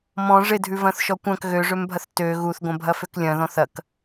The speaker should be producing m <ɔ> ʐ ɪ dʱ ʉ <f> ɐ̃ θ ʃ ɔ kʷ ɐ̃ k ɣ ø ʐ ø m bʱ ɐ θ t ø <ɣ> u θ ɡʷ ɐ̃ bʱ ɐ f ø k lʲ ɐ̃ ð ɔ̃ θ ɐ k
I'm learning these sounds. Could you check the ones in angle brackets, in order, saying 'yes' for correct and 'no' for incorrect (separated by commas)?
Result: no, no, yes